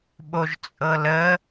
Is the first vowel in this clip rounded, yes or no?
yes